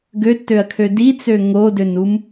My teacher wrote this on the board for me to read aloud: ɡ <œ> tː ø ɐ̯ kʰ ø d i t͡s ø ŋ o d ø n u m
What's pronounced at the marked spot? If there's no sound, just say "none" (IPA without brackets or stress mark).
ø